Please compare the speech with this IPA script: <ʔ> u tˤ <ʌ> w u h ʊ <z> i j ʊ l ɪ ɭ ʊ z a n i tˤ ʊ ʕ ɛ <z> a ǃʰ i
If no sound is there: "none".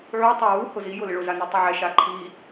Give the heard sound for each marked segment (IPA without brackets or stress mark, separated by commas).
ʕ, a, z, ʃ